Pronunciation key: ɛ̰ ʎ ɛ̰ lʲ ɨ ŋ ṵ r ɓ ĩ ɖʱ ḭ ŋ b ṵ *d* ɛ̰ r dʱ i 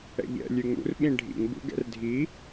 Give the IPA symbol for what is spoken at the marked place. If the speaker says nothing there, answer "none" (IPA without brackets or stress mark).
ɡ